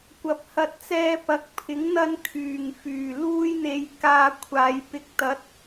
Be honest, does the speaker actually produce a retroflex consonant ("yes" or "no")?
no